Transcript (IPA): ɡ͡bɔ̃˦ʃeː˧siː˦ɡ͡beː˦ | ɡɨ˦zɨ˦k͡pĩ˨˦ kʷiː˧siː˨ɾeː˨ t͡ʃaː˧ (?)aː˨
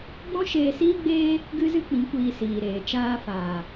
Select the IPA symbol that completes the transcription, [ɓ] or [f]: f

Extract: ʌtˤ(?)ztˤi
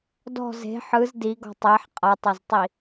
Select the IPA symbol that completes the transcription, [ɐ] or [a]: ɐ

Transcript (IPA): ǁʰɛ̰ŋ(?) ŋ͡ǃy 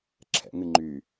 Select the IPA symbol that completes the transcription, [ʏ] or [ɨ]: ɨ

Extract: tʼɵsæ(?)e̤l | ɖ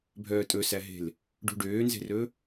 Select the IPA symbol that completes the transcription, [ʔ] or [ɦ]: ɦ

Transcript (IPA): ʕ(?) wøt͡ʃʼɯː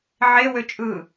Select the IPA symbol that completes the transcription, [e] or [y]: e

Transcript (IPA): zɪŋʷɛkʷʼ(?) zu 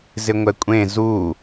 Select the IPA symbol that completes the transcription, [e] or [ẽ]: ẽ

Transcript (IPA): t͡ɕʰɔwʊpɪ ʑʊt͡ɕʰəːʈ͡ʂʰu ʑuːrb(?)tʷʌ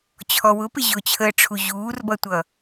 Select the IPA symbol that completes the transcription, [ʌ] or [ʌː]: ʌ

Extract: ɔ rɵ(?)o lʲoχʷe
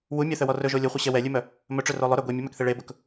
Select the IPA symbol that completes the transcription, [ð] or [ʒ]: ʒ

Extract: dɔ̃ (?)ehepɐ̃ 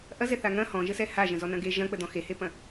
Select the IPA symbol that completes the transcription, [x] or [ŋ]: x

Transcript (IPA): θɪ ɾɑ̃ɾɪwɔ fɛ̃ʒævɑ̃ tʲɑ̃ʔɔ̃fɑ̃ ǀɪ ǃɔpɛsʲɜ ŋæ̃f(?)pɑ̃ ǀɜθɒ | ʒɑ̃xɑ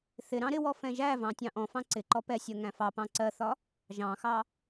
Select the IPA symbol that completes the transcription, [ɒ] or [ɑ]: ɑ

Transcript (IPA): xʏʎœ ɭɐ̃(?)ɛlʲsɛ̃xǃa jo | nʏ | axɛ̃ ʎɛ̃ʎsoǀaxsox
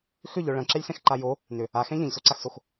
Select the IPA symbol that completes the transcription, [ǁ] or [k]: ǁ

